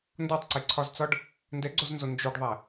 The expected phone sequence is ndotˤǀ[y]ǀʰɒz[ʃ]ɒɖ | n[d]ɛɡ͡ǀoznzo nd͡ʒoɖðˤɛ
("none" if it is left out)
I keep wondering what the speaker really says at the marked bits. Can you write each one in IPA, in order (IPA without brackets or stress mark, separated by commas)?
e, t͡s, d